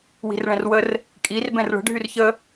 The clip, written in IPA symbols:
w i̤ r ɭ ɛ̃ r w ə r | kʼ i r b ɛ̃ r ɭ ə̤ ɖʱ y r ç ə

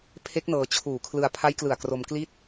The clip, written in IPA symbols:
pʰ e˦˥ k̚ n ɤː˧ t͡ɕʰ uː˨˩ kʰ l ɯ˧ a̯ pʰ a˦˥ j k l ɯ˨˩ a̯ k r o˧ m k l i˥˩ t̚

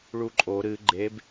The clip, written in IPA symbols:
ɭ u ǃʼ o ɾ ɨ ɡ͡ǃ e b

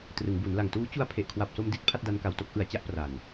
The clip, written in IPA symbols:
t r ɯ˩˦ ŋ b u˩˦ n l a˨˩ ŋ t uː˦˥ t͡ɕ u˧ a̯ pʰ e˨˩ ʔ kʰ w a˨˩ p̚ s o˧ m d i˦˥ t̚ pʰ a˥˩ t̚ d a˦˥ n k a˨˩ w t o˥˩ k̚ ʔ ɯ˩˦ a̯ t͡ɕ a˦˥ ʔ p r a˨˩ n

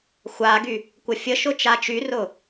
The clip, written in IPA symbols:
xʷ a ɡ y | kʷ ə fʲ ə ʃ ʊ t͡ʃ a t͡ʃ y r ʊ

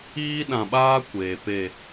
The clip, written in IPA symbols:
iː˦ ɗ ã˨ ɓ aː˦ kʷ eː˨ p e˦˨

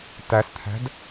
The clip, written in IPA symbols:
t æ s t̪ʰ æ̤ d

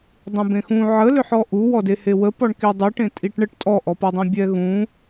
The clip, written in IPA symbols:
dˤ ũ b ẽ x ũ ʕ ə l ʏ ħ ɔ ʔ u w ɔ d e h e w ə p ɔ ɳ k i dˤ u ʈ ẽ tʼ i ʈ ɳ ə ʈ tʼ ɔ ʔ ɔ p ɔ dˤ ẽ bʲ ɛ ɣ ũ

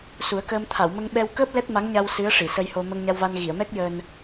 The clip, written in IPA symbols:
s u˨˩˦ ə̯ k əː˧ m t̪ʰ a˨˩˨ w m ə˧ ŋ ɓ ɛ˧ w k əː˦˥ p̚ l ɛ˦˥ t̚ m a˧˥ ŋ ɲ a˧ w s ɨ˧˥ ə̯ ʂ i˨˩˨ s ə˧ j h o˧ m ə˧ ŋ ɲ a˧ w v a˧ n ɣ i˨˩˨ ə̯ m ɛ˦˥ k̚ j əː˧ n

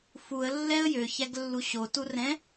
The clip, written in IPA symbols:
f u ə̯ lː ɛ ə̯ j ø ç æ ɡ lː u ɕ o t u r ɛ̃

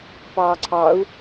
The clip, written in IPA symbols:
p ɑː ǀʰ ɑ u̯

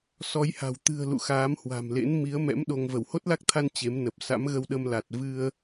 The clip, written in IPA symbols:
s ɔ˨˦ j h a̤˨˩ w t̪ ɨ̤˨˩ ə̯ l ṵ˧˨ x aː˨˦ m h w a̤˨˩ m l ḛ˧˥ n m i˨˦ ə̯ m ɛ̰˧˥ m ɗ o˧ ŋ v ə˧˩ w h o˦˥ t̚ l a˦˥ k̚ t̪ʰ a˧ n t͡ɕ e˨˦ m n ə˨˩ p̚ s a̰˧˥ m ɣ ə˧ w ɗ ə˧ m l a˨˩ t̚ v ɨ˧ ə̯

